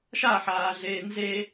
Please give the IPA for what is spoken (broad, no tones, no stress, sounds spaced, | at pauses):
ʃ a ħ aː ɮ eː n z e